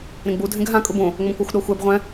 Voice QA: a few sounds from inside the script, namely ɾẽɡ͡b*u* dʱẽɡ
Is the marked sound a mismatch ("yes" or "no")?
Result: no